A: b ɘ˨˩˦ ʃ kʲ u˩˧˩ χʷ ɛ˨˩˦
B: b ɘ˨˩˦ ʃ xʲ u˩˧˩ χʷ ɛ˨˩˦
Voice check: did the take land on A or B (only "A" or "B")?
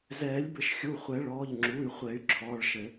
B